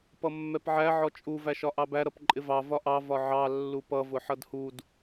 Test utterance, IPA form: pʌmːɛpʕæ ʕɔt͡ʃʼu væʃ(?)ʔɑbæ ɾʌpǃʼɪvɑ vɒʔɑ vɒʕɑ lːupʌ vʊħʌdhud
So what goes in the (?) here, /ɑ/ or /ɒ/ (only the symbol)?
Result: ɒ